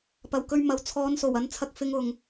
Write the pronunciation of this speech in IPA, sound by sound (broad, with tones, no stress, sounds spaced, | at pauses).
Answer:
p ɐ˨˩ w k ɵ˧ ɥ m ɐ˨ w t͡sʰ ɔː˨˧ n s o˨˩ w ɐ˧ n t͡sʰ ɐ˧ k̚ f ɪ˥ ŋ ʊ˧ ŋ